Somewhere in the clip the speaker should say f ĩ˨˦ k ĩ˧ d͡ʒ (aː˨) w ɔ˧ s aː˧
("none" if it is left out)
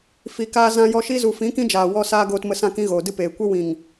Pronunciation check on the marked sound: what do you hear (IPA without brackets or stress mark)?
aː˨